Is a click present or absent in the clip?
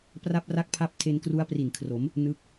absent